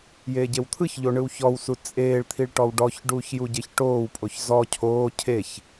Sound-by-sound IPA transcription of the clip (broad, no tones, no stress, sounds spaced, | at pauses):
j eː ɟ e w t̪ʰ ɯ ç ʎ o ɳ ɯ w ç ɔ w s u t͡sʼ eː ɭ t̪ʰ i ɭ ʈ ɔ w ɖ ɔ ç ɖ uː ç j u ɟ e ç ʈ oː w pʼ o ç z ɔ cʰ oː cʰ e ç